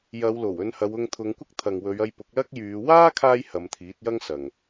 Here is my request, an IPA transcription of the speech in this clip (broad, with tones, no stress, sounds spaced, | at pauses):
j ɐ˨˧ w l o˨˩ w ɵ˧ n h ɐ˨˧ w ʊ˧ ŋ t̪ʰ ʊ˨˧ ŋ kʷ ɐ˥ k̚ t̪ʰ ɐ˨ ŋ w ɵ˨˧ ɥ ɐ˧ j p ʊ˨˥ k̚ l ɐ˥ k̚ j yː˨˧ w aː˥ kʰ aː˥ j h ɐ˨˧ m t̪ʰ iː˨˥ t̚ j ɐ˥ ŋ s ɐ˨ ŋ